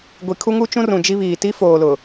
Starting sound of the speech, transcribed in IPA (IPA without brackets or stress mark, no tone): ɡʷ